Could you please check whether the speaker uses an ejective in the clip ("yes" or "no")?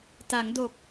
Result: no